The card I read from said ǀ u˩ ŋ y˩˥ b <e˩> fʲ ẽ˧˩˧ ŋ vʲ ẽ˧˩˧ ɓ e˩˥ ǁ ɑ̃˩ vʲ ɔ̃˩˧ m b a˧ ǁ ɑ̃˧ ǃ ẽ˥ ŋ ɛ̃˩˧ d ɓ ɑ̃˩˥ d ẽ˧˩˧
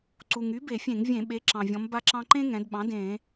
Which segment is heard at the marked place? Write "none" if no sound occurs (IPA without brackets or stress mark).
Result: e˧˩˧